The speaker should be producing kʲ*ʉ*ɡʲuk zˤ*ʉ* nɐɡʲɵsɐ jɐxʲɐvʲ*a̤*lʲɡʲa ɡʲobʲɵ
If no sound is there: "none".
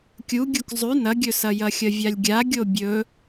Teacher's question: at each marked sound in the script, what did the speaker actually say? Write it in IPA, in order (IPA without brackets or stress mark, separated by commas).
u, ʉ, a